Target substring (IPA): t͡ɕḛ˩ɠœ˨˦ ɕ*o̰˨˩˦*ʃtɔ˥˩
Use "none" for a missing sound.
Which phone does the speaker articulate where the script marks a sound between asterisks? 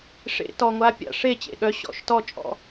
ɔ̰˨˩˦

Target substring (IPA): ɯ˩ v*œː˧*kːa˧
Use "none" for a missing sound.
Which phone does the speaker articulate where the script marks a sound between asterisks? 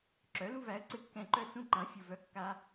œ˧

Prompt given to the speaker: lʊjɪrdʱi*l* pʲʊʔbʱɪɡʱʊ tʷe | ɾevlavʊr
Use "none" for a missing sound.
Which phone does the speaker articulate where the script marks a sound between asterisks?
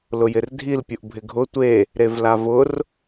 l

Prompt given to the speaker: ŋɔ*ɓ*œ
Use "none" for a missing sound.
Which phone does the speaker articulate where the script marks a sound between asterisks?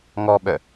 ɓ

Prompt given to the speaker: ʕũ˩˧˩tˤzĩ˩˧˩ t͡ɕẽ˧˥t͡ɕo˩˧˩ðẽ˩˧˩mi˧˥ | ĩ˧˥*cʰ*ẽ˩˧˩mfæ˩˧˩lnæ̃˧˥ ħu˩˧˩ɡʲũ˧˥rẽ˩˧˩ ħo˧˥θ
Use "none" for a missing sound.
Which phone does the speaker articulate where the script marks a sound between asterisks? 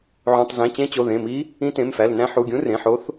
t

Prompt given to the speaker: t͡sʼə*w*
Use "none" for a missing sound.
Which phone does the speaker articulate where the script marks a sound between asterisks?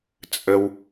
w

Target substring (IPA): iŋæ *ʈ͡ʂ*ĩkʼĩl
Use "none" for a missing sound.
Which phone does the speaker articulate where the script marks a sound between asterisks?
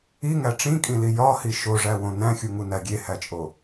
ʈ͡ʂ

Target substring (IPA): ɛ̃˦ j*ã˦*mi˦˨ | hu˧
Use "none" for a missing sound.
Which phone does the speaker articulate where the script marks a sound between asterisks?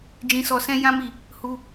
ã˦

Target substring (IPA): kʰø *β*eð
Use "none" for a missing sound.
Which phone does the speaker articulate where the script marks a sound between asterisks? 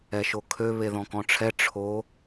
β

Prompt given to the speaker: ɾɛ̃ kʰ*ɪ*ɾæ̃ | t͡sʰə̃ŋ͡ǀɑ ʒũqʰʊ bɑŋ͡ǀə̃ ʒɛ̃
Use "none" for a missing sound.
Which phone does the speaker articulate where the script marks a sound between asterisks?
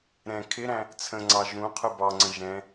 ɪ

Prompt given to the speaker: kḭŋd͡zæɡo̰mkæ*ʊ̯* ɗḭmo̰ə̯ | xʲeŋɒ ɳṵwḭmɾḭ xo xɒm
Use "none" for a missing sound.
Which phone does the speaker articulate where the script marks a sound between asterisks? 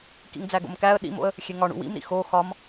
ə̯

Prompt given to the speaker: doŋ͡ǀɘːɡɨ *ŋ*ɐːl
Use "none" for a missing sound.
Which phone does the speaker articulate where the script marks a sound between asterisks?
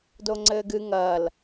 ŋ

